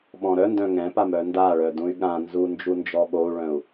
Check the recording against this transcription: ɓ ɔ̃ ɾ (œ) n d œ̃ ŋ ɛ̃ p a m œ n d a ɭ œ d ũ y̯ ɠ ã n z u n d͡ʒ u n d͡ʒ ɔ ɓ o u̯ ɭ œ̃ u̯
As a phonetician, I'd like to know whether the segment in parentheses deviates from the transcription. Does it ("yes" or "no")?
no